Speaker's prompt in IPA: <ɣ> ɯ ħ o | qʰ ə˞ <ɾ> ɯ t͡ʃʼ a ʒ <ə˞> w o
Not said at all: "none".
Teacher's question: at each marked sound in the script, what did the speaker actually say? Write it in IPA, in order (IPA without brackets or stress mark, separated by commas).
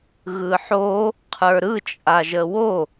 ɣ, ɾ, ə